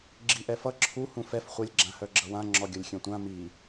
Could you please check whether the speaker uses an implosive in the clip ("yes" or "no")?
no